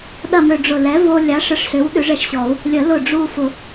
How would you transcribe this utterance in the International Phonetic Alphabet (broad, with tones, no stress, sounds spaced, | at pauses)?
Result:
ɗ ɐ˥˧ m ø˧ ɖ͡ʐ ʊ˧˩ l ɛ˨˥ v o˧ lʲ a˨˥ ʂ ə˧ ʂ ɬ ʏ˨˥ w ɗ ʏ˨˥ ʐ ɛ˧ ʃ ɕ ɔ˨˩˦ u̯ | lʲ ə˨˩˦ l ʊ˧˩ ɖ͡ʐ u˥˧ f ʊ˨˩˦